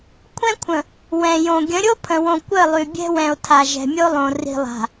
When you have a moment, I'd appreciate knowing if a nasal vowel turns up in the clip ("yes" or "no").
yes